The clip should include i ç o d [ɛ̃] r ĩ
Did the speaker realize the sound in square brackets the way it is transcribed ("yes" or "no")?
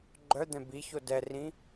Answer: no